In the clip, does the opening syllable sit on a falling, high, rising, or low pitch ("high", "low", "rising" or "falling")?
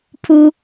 low